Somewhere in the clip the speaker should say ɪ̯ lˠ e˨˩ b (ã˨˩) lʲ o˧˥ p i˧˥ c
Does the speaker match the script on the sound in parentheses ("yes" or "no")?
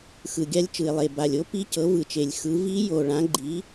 no